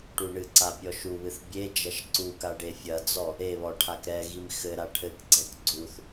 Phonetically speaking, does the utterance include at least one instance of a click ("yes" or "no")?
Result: yes